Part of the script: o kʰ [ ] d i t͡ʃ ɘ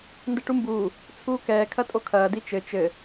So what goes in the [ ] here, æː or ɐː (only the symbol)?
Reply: ɐː